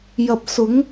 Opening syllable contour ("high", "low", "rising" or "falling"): low